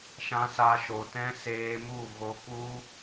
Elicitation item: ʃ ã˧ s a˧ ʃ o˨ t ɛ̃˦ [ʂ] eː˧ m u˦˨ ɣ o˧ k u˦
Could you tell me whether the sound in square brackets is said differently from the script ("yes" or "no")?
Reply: yes